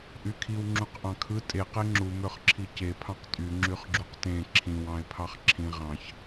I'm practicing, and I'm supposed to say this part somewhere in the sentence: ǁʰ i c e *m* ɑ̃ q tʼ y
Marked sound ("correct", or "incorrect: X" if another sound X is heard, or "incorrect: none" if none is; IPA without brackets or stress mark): incorrect: pʰ